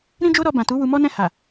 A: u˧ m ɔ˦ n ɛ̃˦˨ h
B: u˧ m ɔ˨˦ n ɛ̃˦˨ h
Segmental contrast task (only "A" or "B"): A